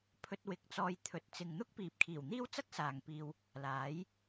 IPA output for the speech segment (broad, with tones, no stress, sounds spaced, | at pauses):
pʰ ɵ˧ t̚ w ɪ˨˥ k̚ t͡s ɔː˧ j t̪ʰ ɵ˨˥ t̚ t͡s ɪ˨ ŋ n̪ ʊ˥ k̚ p iː˨ p̚ kʰ iː˨˩ w n̪ iː˥ w t͡s ɐ˥ k̚ s aː˨ ŋ p iː˧ w | l aː˨˥ j